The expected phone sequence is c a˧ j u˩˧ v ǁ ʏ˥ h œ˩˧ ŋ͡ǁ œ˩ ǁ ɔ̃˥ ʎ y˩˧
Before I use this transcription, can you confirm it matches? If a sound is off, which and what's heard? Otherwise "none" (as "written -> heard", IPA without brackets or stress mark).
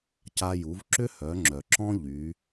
none